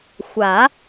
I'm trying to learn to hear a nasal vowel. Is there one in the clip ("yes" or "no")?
no